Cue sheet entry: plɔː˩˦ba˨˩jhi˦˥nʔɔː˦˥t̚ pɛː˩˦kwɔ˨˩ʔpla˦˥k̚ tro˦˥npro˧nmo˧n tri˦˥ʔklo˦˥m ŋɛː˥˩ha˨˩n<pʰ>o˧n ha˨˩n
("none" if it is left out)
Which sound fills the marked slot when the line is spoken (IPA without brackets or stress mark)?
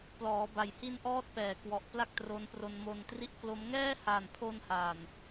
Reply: pʰ